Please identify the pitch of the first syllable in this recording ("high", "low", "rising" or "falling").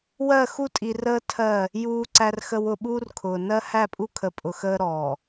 falling